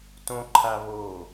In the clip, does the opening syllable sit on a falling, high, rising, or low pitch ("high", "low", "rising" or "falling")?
high